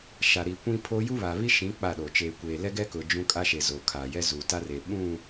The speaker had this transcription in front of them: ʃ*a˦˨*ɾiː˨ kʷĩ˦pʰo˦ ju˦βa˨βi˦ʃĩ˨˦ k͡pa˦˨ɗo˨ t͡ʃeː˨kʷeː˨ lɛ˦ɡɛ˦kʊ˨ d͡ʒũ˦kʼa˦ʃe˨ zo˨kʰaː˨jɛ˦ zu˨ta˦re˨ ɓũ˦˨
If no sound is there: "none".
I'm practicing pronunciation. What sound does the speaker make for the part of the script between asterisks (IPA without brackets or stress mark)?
a˨